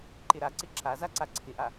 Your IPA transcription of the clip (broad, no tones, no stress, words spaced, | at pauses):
ǃɪɾaǀɪ ǁa zaǀaǀʰɪʔa